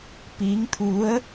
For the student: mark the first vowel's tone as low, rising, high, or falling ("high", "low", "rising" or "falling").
rising